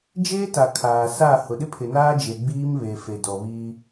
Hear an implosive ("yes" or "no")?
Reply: yes